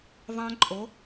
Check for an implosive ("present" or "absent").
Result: absent